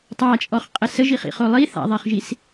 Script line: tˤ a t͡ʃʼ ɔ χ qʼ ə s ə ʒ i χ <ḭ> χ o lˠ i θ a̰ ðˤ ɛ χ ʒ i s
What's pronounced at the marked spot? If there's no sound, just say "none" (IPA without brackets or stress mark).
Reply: ḭ